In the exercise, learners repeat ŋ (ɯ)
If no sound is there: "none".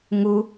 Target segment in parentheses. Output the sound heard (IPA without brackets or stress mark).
u